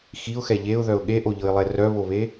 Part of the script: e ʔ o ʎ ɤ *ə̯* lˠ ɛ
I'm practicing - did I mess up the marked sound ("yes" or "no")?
yes